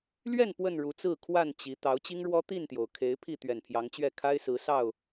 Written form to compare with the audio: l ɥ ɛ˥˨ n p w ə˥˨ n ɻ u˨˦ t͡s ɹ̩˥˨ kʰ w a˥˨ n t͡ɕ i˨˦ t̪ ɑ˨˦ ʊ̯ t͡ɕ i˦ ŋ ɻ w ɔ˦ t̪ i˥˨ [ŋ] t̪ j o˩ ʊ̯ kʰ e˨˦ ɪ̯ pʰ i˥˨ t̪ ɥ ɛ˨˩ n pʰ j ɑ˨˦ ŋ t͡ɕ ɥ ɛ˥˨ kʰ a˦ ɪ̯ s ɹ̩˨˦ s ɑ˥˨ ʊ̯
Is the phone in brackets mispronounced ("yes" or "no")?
yes